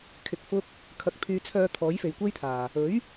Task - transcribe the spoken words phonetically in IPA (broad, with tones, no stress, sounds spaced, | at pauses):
kʰ ɪ˨ k̚ f ʊ˧ k̚ | kʰ ɐ˨ k̚ pʰ yː˨ t͡sʰ œː˨˧ t̪ʰ ɔː˨˥ j f e˨ j kʷ e˥ j t̪ʰ aː˨ | ɵ˨˥ ɥ